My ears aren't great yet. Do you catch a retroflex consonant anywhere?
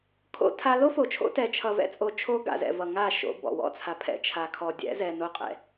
no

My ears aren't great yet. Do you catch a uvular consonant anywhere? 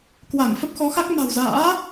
no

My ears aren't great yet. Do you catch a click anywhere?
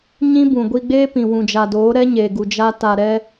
no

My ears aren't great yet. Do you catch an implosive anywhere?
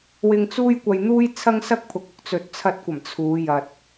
no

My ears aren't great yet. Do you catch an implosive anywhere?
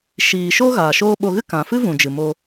yes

